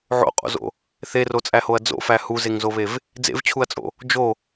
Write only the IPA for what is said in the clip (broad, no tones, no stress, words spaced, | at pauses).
ʕo̰qʼo̰zo̰ | θerot͡sʼæhoɐ̯ d͡zo̰fæ huzeŋzoβev | d͡zḛvt͡ɕʰuɐ̯t͡sʼo̰ | d͡ʒo